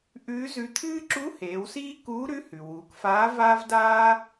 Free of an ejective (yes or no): yes